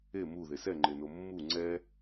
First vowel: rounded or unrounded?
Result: unrounded